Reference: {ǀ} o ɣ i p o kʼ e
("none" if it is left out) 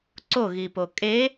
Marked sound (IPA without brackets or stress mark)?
ǀ